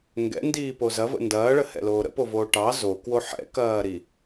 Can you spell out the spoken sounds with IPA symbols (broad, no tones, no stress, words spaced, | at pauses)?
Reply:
ŋɡɛ̰ndiːpo zɐvə̰ ndɐːɭəhɛ̰loː ɾə̰povoː ʈɑ zokwo ħɛ̰kɐːɾi